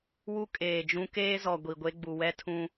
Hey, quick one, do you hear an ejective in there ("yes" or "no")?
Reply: yes